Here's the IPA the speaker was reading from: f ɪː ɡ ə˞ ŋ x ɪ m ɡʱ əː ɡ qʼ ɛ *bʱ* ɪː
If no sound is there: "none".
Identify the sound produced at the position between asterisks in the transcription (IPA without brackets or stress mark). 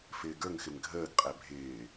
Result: bʱ